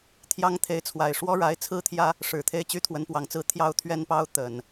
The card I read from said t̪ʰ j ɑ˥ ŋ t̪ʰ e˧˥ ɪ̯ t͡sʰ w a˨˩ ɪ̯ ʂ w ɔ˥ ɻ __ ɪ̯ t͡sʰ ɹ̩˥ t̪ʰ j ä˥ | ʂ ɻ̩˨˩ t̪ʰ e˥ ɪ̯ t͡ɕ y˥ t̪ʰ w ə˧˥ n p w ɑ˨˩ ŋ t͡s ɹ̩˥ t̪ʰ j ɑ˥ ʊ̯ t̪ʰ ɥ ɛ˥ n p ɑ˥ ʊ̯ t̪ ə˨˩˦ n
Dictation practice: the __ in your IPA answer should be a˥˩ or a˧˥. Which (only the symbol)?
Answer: a˧˥